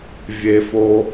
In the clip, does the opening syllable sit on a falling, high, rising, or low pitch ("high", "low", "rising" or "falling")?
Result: low